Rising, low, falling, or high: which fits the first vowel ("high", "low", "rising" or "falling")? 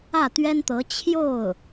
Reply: falling